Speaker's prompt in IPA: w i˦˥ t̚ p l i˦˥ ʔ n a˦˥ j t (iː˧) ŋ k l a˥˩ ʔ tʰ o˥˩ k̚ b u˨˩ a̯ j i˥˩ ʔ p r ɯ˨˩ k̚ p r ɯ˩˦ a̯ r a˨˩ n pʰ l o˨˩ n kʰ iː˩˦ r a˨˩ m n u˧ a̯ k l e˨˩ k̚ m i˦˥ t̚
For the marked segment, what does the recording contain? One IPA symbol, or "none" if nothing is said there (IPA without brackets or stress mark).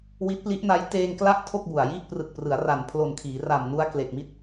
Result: eː˧